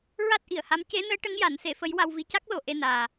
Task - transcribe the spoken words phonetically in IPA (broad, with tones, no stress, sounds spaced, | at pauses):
ɹ a˦˥ t̚ ʔ i˨˩˨ ə̯ h a˧˥ m c e˧˥ n əː˧˥ ʈ ə˧˥ ŋ j a˨˩˦ n s e˨˩˦ f ə˧˥ j w a˧ w v i˧ c a˦˥ k̚ l o˨˩ ʔ e˧ n aː˨˩